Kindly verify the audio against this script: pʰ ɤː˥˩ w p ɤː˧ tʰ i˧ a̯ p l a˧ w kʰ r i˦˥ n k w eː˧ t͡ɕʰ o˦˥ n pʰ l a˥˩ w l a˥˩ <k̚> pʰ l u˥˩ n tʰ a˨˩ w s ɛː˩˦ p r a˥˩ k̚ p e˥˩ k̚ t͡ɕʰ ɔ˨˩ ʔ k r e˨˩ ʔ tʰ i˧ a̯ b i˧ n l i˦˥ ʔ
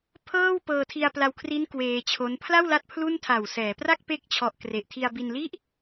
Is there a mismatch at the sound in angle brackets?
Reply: yes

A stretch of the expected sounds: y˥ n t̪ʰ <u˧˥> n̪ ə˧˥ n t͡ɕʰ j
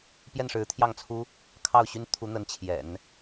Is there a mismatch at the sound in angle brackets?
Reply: no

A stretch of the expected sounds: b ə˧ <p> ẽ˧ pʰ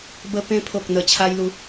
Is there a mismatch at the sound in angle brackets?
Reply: no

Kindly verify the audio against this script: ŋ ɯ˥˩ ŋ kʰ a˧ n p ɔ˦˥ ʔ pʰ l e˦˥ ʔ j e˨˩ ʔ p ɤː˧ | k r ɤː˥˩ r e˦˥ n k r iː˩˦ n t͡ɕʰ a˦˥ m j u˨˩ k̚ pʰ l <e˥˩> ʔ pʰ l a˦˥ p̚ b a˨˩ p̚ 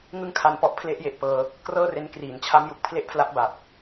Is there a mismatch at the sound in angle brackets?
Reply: no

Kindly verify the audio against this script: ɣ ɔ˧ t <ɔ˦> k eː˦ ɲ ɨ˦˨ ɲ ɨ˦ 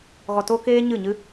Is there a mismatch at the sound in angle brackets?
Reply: yes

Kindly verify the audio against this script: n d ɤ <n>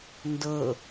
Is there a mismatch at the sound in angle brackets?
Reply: yes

